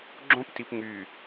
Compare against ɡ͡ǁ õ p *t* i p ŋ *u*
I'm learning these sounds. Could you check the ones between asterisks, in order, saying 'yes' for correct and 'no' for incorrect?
yes, no

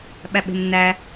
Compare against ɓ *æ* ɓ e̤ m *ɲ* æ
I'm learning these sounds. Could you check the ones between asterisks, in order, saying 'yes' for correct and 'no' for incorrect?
yes, no

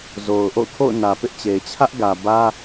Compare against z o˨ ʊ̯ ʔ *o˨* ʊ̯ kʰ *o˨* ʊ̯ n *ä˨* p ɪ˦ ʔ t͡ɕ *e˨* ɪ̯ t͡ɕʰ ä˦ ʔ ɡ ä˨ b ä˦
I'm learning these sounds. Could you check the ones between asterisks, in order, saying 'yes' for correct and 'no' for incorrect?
no, no, yes, yes

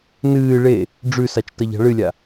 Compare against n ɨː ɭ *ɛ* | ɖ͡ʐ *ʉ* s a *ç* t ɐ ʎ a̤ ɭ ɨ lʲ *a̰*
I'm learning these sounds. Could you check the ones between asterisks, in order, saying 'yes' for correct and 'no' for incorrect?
no, yes, no, no

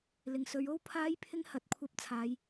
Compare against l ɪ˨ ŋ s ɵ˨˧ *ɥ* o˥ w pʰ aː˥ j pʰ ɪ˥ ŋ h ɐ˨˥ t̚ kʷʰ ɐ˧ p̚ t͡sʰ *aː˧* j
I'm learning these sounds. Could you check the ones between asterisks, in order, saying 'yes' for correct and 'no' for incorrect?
yes, no

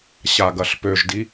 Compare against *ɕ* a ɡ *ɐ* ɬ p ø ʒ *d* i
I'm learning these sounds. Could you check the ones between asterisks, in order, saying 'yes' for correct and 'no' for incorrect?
yes, yes, yes

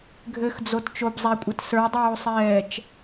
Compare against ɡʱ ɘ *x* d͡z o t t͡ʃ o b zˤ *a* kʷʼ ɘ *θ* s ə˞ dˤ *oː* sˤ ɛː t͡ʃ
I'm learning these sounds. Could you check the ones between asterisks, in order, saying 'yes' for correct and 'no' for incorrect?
yes, no, no, yes

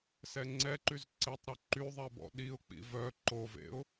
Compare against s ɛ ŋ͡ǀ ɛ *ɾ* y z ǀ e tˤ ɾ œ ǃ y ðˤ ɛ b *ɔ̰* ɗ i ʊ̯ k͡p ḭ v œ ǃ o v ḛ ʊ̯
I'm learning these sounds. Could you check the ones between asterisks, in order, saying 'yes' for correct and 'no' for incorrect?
no, yes

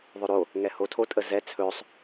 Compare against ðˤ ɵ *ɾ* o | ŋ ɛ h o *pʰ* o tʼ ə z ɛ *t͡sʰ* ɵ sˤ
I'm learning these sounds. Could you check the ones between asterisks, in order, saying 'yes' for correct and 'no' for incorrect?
yes, no, yes

